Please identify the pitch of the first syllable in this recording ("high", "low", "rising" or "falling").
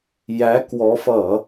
rising